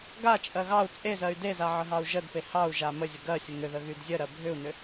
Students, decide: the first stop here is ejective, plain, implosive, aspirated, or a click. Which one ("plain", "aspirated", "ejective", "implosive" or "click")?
plain